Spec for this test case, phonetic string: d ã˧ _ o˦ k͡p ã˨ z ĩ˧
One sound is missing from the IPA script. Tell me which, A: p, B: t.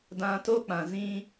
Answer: B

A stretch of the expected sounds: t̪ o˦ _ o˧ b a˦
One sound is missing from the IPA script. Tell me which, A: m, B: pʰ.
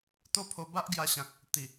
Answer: B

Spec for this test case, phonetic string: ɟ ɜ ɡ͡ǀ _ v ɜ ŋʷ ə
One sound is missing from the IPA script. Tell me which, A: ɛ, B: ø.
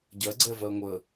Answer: A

